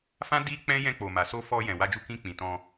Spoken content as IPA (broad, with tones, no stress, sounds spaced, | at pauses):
f ã˦ d i˦ k͡p ɛ̃˦ j ɛ̃˧ k͡p o˨ m a˨ s o˧ f ɔ˧ j ɛ̃˨ w a˧ d͡ʒ u˧ k ĩ˧ k͡p ĩ˨ t ɔ̃˧